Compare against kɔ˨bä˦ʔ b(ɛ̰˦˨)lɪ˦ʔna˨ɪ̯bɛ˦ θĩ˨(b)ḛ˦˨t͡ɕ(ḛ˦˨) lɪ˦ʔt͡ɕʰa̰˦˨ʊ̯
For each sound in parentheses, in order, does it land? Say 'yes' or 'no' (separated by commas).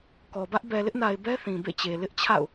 no, yes, no